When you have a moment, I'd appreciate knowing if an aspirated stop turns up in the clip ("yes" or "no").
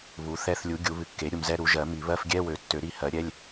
no